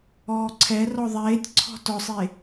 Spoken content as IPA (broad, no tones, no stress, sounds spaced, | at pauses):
ɔː ǀʰ ɛ r ɔ ðˤ eː tʲ ǀʰ ɔ̤ t ɔ sˤ e